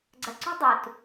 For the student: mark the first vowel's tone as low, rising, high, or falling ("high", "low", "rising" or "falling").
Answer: low